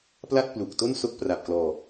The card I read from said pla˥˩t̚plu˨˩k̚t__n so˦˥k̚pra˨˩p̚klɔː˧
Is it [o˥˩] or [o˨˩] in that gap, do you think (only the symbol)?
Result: o˥˩